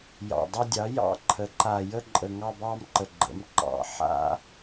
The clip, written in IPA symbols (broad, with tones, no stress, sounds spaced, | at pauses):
j ɑ̰˨˩ dˤ ɑ˥˧ dʲ ɑ˩˥ j ɑ̰˥˧ ǃʰ ə˩˥ ǃ a˨˩ j ə˥˧ ǃʼ ə˨˩ ŋ ɑ˥˧ b ɑ˥˧ m ǃ ə˨˩ ɡ͡ǃ ə̰˩˥ m ǃ ɑ̰˨˩ ħ a̰˥˧